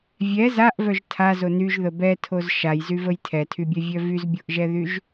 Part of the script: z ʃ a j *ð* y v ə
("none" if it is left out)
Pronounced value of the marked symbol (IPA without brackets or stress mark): z